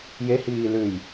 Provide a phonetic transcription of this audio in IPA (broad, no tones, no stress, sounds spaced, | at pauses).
j e h iː l ʉ j